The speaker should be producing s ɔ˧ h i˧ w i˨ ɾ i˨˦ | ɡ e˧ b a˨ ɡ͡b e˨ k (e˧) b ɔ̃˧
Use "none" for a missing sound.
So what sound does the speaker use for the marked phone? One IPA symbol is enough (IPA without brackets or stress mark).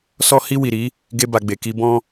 i˧